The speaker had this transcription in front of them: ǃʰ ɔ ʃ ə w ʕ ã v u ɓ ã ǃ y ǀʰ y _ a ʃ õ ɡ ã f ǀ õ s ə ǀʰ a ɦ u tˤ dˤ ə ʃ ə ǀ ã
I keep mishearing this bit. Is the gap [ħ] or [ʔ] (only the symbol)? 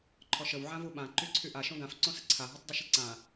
ʔ